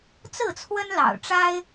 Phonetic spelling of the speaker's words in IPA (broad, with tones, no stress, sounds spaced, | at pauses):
t͡s ɹ̩˥˨ t͡sʰ w ə˦ n l ɑ̰˨˩ ʊ̯ ʈ͡ʂ a˦ ɪ̯